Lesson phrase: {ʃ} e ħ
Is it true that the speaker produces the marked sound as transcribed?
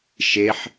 yes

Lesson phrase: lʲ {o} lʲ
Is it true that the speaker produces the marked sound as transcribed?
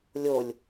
yes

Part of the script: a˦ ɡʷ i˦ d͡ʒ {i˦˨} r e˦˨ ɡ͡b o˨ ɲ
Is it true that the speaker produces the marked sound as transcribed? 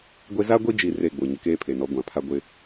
yes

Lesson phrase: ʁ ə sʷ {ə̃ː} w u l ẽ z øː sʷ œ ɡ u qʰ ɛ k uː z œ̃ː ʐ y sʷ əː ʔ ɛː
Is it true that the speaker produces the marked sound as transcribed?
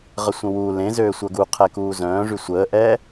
no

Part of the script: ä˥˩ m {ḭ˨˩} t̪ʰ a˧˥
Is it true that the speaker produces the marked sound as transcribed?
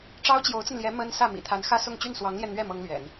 yes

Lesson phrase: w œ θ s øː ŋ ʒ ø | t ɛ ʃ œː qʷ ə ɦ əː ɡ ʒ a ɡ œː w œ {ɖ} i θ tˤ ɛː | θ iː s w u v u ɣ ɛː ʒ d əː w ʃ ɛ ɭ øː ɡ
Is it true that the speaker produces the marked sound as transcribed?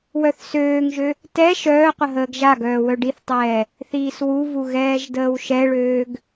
yes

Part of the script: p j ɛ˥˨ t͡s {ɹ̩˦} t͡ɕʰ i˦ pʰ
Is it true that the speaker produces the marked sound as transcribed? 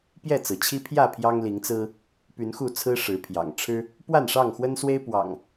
no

